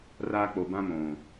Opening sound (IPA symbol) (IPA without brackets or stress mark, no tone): r